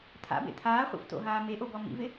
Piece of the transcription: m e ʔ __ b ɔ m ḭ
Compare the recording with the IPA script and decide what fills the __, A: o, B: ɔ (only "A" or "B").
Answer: A